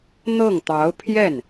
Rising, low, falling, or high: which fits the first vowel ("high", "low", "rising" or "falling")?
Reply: falling